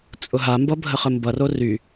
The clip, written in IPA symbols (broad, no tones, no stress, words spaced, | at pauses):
t͡sʼʊɦambʌ bʱəχəmbʌro ry